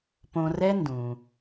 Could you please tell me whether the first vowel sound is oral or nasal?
nasal